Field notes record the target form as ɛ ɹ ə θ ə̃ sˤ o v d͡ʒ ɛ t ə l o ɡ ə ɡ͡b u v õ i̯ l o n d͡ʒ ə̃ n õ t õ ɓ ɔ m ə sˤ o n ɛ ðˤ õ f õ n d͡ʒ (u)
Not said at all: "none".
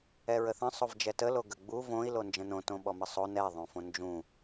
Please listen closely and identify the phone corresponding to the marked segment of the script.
ũ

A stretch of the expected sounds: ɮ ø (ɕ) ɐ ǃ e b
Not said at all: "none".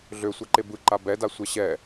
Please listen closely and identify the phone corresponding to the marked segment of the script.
sʷ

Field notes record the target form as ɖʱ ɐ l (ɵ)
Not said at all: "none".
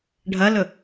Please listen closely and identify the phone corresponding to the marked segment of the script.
ɵ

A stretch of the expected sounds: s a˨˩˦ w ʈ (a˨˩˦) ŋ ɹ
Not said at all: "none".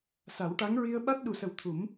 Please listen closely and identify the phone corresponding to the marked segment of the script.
a˧˥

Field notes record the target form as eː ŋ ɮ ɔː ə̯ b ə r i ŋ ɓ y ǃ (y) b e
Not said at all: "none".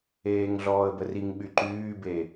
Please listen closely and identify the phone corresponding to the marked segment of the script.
yː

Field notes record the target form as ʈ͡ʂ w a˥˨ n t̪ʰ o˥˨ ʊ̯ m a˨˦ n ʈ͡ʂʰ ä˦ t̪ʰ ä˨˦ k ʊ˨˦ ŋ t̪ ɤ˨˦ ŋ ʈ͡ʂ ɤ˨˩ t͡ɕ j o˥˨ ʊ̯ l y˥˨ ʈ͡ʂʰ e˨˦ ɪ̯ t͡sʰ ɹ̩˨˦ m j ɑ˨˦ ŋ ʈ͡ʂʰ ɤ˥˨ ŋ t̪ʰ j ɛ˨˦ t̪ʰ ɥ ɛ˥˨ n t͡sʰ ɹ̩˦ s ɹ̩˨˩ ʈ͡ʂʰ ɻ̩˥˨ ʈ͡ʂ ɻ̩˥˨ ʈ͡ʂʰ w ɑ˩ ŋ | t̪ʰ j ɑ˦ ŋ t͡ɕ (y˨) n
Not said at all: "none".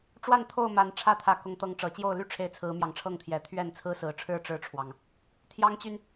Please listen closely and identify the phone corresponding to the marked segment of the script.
y˨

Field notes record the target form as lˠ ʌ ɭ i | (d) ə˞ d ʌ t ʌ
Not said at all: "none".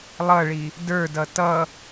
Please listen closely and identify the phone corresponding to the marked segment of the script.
d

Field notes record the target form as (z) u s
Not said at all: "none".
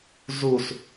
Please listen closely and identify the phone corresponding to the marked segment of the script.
z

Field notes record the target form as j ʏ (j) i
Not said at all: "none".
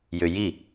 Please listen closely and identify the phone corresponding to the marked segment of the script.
j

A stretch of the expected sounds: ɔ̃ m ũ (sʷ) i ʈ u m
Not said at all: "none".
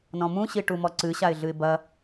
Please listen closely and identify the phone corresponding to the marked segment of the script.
ɕ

